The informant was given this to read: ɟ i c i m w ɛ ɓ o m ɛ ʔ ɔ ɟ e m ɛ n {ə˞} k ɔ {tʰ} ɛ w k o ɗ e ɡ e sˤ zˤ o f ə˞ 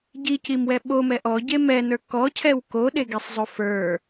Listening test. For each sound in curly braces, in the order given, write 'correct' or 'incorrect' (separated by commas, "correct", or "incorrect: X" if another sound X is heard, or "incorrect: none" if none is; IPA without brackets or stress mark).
correct, incorrect: cʰ